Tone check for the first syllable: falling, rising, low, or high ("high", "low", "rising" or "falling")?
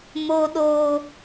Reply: high